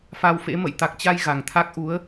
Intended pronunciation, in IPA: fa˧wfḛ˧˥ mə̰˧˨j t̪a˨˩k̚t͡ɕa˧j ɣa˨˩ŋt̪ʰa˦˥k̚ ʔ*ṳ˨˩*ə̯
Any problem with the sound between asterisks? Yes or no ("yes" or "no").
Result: yes